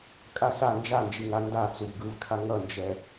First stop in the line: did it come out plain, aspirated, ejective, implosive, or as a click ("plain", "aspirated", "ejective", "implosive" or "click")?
ejective